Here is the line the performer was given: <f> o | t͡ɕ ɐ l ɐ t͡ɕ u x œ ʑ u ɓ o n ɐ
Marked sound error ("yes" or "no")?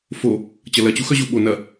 no